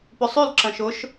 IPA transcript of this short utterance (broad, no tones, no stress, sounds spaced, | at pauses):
p ʏ sˤ y l ǁ ɐ̃ ʃ ʊ ʃ